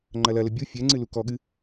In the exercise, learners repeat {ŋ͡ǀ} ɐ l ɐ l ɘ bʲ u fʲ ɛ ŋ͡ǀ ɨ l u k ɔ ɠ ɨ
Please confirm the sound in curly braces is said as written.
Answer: no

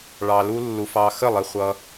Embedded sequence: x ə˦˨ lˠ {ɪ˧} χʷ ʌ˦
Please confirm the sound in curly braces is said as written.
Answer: yes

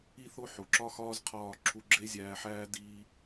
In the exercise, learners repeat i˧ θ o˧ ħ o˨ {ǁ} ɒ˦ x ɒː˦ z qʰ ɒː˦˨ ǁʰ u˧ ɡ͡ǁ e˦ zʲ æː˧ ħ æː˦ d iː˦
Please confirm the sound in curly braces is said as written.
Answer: yes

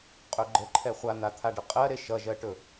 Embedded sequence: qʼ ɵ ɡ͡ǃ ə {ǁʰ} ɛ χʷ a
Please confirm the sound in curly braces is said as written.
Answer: no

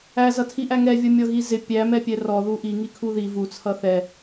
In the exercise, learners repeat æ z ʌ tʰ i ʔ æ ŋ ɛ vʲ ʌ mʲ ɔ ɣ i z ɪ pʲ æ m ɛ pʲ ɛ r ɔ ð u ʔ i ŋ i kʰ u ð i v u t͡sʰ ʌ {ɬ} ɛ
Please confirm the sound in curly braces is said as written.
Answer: no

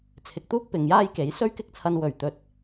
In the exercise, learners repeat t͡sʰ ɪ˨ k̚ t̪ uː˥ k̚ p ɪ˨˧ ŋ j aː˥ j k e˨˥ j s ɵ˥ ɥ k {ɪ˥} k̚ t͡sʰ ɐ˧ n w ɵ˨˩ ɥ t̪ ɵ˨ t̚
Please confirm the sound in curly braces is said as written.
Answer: yes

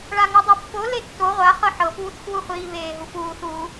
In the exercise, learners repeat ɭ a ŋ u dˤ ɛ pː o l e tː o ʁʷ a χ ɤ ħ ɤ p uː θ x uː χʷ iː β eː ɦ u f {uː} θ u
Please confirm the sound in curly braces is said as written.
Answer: yes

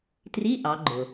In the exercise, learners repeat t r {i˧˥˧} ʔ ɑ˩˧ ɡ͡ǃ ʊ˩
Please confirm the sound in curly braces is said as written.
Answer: yes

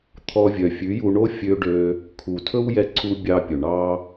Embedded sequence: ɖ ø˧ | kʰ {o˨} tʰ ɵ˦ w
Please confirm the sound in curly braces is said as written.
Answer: no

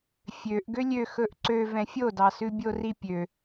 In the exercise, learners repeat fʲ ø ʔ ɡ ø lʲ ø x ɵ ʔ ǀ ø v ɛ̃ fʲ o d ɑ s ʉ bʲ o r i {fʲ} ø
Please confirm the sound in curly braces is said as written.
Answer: no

